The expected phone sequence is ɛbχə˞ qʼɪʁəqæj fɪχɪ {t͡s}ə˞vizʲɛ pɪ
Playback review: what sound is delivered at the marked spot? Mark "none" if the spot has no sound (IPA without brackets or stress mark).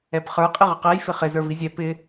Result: z